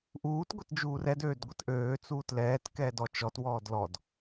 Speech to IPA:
ʔ uː t ɡʷ ɛ t d͡ʒ uː r ɛ d øː d ɡʷ ə t ʔ øː t͡s uː t l ɛː t k ɛː d ɔ t͡ʃ ɔ t w ɔː d l ɔ d

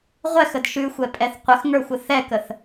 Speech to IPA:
ʁʷ ɛ x ə d ʃ ʉ xʷ ɛ pʼ ɛ θ qʷ ə x ŋ ə˞ xʷ ə θ ɛ k ə θ

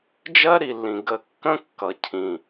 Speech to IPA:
d͡ʒ ɜ˦ ɾ i˨ lː ĩ˨ ɡ ə˧ kː ə̃˦ kː ʌ˨ cʰ ĩ˨

